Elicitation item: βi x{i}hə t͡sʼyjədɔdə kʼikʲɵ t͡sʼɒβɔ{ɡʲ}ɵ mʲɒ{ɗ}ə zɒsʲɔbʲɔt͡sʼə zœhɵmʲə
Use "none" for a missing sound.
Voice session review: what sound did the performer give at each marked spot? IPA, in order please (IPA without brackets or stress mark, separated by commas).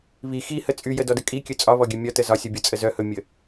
i, ɡʲ, t